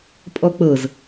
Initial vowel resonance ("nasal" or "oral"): oral